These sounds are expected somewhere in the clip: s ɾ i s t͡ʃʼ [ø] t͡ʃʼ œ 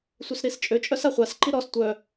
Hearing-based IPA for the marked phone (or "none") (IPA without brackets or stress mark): ø